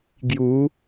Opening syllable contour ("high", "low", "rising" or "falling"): rising